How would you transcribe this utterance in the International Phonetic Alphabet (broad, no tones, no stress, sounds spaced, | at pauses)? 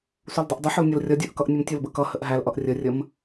s u l dˤ ʌ ʔ dˤ ʊ ħ ʊ l nʲ ʌ l rʲ ʌ dʲ ə˞ ʔ k ʌ ʔ nʲ ʊ m tʲ ʊ l b ə k ʌ h ə ʔ ɦ æ l ʔ ʌ ʔ rʲ ə rʲ ə m